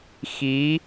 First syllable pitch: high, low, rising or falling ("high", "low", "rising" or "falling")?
rising